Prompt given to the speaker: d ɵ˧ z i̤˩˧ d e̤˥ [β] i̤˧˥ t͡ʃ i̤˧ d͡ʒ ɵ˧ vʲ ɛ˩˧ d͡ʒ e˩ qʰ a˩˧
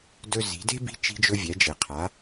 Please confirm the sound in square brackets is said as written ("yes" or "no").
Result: no